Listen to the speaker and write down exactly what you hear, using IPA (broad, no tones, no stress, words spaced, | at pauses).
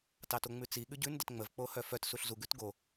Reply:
tɑtoŋ͡mʉt͡si ɠʉɟʉn dətŋ͡məv k͡pohœfœt suɬzu ɡʉtɡo